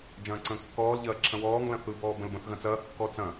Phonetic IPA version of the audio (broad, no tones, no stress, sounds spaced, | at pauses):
d͡ʒ ɐ̃ː ǀ ə̃ː kː ɔː l ʎ ɐː ǁʰ ɐ̃ w ɔː ŋ l ɐ̃ θ ɯ b ɔː b ə̃ l b ə̃ θ ɣ ɐ̃ t͡s ɐː kː ɔ t͡s ɐ̃